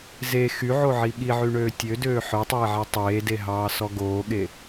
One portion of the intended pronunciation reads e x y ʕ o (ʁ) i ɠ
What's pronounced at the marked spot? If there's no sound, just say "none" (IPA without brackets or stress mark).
ʕ